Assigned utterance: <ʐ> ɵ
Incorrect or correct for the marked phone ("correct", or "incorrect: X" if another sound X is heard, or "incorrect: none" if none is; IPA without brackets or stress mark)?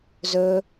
incorrect: z